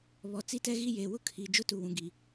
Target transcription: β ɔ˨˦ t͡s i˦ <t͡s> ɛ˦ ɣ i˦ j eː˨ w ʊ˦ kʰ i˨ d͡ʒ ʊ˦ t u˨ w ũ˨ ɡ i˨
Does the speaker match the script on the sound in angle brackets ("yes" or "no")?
no